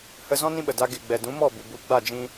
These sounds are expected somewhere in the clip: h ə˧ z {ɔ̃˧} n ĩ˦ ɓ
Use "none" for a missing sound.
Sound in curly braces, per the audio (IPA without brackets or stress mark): ɔ̃˦